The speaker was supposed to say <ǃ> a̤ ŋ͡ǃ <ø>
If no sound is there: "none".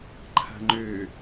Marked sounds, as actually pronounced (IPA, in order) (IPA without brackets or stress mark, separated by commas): ǃʰ, ø